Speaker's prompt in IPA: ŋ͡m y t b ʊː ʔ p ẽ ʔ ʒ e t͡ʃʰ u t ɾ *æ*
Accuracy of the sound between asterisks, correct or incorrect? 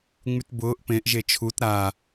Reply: incorrect